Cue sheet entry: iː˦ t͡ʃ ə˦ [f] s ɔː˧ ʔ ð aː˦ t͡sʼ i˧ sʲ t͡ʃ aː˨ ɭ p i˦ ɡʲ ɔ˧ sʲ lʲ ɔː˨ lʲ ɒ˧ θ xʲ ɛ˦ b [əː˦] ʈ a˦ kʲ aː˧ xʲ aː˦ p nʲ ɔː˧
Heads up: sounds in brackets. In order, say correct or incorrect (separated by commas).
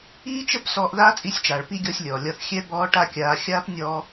incorrect, incorrect